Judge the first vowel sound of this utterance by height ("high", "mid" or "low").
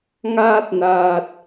low